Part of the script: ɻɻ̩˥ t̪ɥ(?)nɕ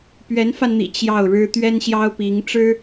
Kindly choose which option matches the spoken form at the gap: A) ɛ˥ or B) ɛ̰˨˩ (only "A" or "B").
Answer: A